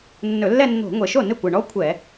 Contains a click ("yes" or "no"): no